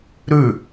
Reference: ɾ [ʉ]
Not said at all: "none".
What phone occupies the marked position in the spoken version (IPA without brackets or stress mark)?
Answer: ʉ